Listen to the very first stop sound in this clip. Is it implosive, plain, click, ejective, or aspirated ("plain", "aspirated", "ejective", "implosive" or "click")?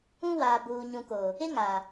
plain